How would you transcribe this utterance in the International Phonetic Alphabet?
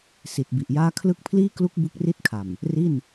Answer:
s i˨˩ t̚ b i˨˩ ʔ j aː˥˩ kʰ l ɯ˦˥ k̚ pʰ l iː˥˩ k l u˦˥ k̚ b u˦˥ k̚ r i˥˩ t̚ kʰ a˨˩ m | r i˥˩ n

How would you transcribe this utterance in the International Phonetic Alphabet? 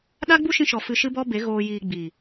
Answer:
ɗ a˦ ɡ͡b u˦ ʃ ĩ˧ ʃ ɔ˨ f ɨ˧ ʃ ɨ˦ b ɔ˦ b e˨˦ ɣ oː˧ j iː˧ ɡ͡b iː˨

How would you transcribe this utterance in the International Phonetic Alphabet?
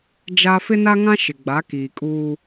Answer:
d͡ʒ a˦ f ɪ˦ n a˦ ŋ ã˦ ʃ ɪ˨ ɡ͡b a˨˦ k iː˨ kʼ uː˦

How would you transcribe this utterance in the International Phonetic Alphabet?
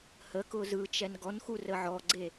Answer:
h ə k ʊ z ɯ t͡ʃ ɛ n ɡ ɔ n x u r ə ʕ ɔ ɡ͡ǀ e

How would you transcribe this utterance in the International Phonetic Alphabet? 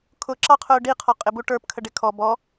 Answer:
kʰ ʊ ǁ ɑ qʰ ʊː ɖ i qʰ ɔ qʼ ɪ b u ʈ ə˞ p kʰ ə ɖ ɪ kʰ ɔ b ɔ

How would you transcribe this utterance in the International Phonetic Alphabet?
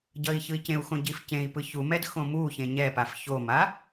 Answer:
ɟ ʌ i̯ ç ɯ i̯ c ẽ u̯ x õ ɟ i f c ẽ i̯ p ɯ ç u m ɛ d x õ m u ç ẽ ɲ ɛ p a f ç o m a

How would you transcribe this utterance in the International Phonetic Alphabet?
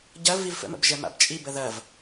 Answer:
ɟ ɐ v i v f ə̰ m ə̰ b ʒ ɛ m a̰ b t͡ʃʼ i b ə ð ɐ v

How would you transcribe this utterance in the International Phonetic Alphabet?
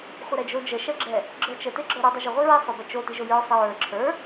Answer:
χʷ ə ɾ ɛ d͡ʒ o d͡ʒ ə ʃ ɛ ɡ͡ǁ ɛ | ɡ͡ǁ ə˞ t͡ʃ ə t e ɡ͡ǁ ə˞ ɾ u dˤ o ʒ ə ʁʷ i ɹ i sˤ o b ɛ t͡ʃ o t i ʒ o j ə˞ sˤ ə ɹ ə˞ ǁʰ ə˞

